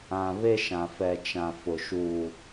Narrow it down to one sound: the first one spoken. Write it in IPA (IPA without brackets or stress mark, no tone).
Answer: ã